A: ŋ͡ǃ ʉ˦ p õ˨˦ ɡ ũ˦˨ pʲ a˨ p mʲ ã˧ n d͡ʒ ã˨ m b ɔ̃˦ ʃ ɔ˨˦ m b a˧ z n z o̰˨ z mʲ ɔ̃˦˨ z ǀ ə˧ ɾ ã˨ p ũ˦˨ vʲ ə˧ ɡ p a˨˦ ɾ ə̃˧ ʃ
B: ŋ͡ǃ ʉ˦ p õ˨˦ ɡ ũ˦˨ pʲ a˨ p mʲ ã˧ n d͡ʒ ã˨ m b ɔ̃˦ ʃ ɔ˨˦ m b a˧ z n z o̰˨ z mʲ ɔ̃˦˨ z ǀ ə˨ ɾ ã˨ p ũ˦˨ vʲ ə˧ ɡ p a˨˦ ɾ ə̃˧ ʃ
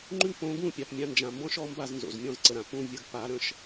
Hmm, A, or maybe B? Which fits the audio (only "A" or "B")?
B